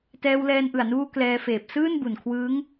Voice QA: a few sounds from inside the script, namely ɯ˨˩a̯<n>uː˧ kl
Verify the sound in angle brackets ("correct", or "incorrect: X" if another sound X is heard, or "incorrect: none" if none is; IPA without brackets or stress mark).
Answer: correct